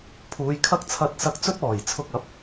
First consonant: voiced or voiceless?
voiceless